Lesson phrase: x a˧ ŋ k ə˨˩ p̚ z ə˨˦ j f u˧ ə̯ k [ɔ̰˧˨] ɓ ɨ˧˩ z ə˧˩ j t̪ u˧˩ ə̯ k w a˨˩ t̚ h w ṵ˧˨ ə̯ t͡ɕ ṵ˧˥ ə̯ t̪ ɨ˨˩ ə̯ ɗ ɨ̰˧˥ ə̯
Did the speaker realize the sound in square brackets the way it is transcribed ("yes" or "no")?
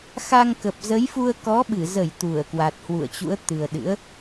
no